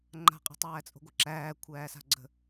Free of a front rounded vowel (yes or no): yes